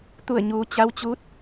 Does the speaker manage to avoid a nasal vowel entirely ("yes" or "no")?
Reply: yes